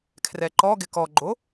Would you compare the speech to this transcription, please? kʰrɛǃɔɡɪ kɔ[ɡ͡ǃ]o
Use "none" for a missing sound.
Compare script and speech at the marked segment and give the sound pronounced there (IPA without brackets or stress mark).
ɡ͡ǃ